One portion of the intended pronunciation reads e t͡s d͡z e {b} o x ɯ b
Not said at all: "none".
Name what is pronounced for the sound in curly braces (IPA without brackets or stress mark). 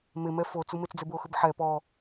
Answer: b